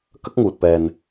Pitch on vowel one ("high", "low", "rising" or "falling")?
high